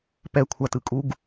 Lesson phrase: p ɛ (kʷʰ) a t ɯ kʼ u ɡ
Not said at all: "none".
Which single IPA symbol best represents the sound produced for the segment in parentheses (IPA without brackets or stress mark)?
kʷʰ